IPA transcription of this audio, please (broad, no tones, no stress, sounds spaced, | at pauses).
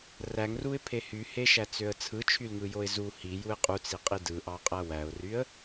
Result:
r æ ŋ r u ɪ̯ pʰ e h y h e ʃ æ t͡s ø ə̯ t͡sʰ ɯ t͡ʃʰ y l ŋ ɯ j o ɪ̯ z u h i j u ɪ̯ qʼ u t͡s i qʼ i d ɯ ʔ ɑ qʼ æ w æ ʊ̯ r y ə̯